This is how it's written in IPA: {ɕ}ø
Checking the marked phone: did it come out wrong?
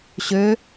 no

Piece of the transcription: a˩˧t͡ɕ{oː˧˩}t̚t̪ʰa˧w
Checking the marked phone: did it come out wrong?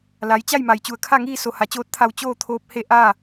yes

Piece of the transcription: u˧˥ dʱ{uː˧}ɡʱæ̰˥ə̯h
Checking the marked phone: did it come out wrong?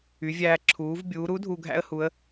yes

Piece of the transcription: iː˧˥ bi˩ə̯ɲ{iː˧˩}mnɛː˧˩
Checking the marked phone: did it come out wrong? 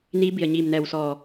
no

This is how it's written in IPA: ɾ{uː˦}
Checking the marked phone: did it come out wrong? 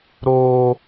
yes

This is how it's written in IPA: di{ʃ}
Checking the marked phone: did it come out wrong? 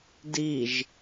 yes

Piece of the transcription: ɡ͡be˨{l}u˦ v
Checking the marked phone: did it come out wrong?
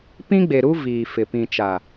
yes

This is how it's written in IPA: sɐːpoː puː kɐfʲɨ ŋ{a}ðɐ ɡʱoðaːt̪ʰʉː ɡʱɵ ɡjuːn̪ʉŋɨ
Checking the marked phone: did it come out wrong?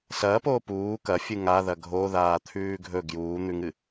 no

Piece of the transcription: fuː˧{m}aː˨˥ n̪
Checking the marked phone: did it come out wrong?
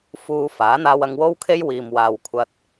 yes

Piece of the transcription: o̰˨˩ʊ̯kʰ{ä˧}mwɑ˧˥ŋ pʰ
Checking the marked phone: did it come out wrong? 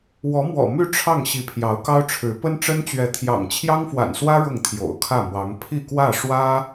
yes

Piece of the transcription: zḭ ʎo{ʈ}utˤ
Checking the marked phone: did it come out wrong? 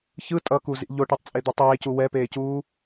no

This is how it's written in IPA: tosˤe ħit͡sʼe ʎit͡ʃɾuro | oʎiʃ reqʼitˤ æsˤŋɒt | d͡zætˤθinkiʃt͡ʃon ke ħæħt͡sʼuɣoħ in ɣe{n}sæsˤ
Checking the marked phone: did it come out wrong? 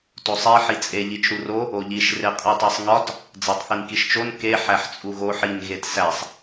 yes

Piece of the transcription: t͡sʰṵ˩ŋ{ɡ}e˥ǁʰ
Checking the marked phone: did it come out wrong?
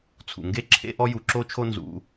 no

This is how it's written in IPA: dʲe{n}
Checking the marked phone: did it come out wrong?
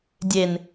no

